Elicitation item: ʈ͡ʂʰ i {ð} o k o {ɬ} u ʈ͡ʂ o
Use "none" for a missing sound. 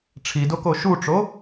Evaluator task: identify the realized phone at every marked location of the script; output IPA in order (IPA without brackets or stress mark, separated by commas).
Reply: d, ʃ